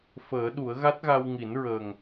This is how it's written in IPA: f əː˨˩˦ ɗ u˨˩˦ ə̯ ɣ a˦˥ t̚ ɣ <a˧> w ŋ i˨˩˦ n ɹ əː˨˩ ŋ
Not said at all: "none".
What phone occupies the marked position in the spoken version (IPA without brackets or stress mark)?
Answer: a˧